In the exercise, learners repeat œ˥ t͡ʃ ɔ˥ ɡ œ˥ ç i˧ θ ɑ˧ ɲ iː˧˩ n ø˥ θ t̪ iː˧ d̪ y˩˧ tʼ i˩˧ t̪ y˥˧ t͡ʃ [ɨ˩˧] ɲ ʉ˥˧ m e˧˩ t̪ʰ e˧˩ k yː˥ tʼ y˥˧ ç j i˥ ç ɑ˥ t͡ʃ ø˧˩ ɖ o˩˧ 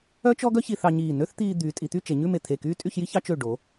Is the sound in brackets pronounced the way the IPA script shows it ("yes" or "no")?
no